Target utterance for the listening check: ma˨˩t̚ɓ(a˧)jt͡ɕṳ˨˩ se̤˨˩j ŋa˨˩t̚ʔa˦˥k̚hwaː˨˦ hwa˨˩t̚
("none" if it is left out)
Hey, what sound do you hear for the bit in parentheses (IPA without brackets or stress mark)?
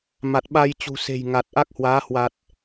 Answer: a˧